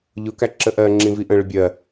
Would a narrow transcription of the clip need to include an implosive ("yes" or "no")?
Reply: no